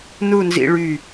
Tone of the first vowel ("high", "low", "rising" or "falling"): falling